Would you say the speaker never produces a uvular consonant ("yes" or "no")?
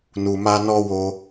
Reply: yes